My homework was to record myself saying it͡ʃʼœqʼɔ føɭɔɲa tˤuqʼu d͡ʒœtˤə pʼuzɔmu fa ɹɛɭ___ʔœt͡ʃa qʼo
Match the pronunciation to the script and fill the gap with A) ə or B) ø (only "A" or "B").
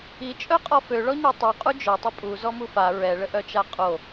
A